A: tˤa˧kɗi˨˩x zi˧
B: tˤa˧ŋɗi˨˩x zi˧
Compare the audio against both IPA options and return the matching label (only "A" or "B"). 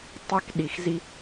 A